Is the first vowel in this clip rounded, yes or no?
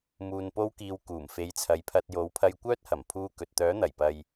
yes